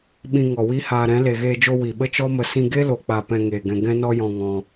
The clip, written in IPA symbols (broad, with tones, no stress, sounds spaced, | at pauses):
ɓ ĩ˧ ŋ ɔ˨ w i˦ h aː˧ ɾ ɛ̃˨˦ l e˨ ɣ eː˧ d͡ʒ o˧ w i˨ ɓ ə˦ t͡ʃ ɔ˦ m ə˧ s ĩ˧ ɡ e˦ l o˨ k͡p a˨ p ɛ̃˧ ŋ eː˨ ɡ ɛ̃˧ ɡ ɛ̃˦ n ɔ˦ j ɔ̃˧ ŋ ɔ̃˧